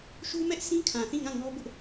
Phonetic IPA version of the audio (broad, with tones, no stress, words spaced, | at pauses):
ʃu˦ mɛ˦ʔsʰĩ˦kʰã˨ θĩ˦˨ŋã˦˨ŋɔ˦ bʊ˦ʔ